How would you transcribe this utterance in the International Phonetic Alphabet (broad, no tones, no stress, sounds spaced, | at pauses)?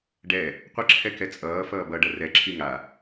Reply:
ɖ ɛ | qʷ ʌ ǁʰ ɛ k ɛ t͡sʼ ʌː f ʌː b ʌ ɖ ʌ r ɛ ǁʰ i ŋ a